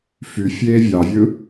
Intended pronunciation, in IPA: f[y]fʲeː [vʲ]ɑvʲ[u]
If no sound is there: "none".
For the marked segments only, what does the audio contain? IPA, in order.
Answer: y, vʲ, ɯ

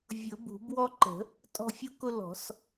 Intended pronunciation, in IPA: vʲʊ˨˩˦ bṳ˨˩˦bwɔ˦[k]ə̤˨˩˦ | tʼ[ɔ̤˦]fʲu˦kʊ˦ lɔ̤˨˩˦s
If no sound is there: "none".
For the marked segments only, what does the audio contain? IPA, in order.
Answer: ǃ, ɔ̤˦

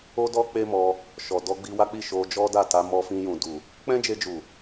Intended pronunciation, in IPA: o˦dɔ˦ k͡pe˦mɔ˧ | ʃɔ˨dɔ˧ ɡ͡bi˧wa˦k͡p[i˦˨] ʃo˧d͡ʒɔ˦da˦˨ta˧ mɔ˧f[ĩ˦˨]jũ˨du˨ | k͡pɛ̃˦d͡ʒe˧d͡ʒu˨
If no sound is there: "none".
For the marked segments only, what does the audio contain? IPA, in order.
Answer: i˦˨, ĩ˧

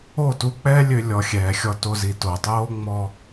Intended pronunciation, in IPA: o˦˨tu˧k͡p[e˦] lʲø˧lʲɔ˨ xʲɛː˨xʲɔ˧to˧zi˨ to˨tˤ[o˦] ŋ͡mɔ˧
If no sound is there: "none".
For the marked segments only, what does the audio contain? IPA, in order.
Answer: ɛ˦, oː˦

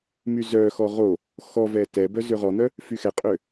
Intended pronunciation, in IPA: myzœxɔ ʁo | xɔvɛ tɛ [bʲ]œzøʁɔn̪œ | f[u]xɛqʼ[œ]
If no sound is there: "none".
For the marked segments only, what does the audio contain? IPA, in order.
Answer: b, y, ø

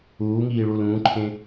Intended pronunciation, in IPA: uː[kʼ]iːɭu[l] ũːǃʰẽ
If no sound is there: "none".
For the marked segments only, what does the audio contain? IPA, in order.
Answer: ŋ, l

